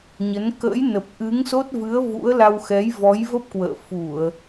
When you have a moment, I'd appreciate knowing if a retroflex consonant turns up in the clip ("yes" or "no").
no